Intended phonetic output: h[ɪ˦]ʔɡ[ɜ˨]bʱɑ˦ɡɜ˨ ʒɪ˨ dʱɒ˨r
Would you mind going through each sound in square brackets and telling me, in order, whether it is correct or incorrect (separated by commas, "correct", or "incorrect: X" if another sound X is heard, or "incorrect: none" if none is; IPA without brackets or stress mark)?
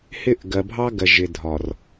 incorrect: ɪ˦˨, correct